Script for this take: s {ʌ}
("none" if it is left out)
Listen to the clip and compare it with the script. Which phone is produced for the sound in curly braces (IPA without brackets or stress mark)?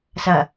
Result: ʌ